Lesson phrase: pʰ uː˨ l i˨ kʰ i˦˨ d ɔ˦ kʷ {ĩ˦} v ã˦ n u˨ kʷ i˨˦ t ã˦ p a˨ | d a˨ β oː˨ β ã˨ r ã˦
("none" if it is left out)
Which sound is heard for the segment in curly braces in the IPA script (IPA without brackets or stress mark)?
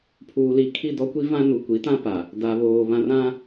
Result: i˦